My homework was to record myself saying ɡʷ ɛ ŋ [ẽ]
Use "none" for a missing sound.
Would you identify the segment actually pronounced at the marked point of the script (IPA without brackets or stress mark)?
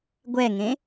ẽ